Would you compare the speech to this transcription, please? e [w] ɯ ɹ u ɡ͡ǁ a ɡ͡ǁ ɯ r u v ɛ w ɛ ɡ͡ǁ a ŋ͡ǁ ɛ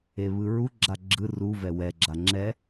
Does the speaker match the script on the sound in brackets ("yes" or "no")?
no